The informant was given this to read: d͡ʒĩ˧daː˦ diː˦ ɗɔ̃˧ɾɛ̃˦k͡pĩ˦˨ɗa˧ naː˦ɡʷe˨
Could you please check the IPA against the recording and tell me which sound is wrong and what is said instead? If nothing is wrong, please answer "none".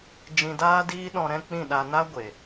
none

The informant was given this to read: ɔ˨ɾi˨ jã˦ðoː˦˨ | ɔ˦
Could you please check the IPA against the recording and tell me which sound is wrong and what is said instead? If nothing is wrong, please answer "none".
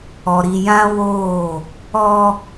ð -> w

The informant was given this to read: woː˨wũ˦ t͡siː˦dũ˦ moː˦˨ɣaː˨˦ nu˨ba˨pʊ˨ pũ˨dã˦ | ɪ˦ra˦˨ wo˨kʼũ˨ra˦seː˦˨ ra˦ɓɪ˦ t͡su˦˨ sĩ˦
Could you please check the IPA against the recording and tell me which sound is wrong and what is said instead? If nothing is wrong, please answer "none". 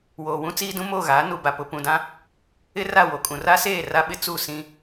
none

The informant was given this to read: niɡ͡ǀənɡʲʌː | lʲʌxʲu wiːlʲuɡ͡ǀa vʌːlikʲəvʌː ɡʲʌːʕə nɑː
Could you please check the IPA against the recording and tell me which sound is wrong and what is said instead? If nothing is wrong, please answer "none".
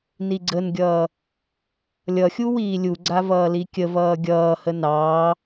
ʕ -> h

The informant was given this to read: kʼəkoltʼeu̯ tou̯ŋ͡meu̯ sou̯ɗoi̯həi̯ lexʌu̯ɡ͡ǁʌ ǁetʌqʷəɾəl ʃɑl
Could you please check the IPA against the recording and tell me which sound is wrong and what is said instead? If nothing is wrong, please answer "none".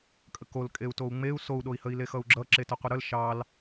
tʼ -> kʼ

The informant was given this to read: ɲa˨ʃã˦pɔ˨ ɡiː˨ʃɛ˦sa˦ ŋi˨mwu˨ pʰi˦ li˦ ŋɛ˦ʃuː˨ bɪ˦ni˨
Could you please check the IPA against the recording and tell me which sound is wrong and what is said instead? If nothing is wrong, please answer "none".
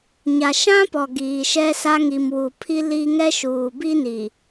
ɪ˦ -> i˦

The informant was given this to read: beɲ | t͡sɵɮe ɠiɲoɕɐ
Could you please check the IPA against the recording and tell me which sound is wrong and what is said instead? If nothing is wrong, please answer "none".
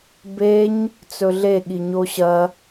none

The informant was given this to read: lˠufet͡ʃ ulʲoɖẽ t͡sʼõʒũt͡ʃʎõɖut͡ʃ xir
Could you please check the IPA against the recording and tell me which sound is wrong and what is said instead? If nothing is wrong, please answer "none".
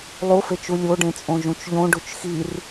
none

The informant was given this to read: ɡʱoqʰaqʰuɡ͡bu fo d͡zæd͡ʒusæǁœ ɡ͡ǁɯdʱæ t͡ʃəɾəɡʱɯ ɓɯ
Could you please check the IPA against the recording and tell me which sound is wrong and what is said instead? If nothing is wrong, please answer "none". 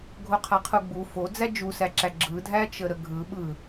œ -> æ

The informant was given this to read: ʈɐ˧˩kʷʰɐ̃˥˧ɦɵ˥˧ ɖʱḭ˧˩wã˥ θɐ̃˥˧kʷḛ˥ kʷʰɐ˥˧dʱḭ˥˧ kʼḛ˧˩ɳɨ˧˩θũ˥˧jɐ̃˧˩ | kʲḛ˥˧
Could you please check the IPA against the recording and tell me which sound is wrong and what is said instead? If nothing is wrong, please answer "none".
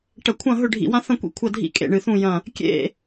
none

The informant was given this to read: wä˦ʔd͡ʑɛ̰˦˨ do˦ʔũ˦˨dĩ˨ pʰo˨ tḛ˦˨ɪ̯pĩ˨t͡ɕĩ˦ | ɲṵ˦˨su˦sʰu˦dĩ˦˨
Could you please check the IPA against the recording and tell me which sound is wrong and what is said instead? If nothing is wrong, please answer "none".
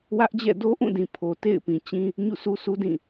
none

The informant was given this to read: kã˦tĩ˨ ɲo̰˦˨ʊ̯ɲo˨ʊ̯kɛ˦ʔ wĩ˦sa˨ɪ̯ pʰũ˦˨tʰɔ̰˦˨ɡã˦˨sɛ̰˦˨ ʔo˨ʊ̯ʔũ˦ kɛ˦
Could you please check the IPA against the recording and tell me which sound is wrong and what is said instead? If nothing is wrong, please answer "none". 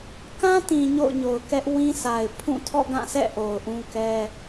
none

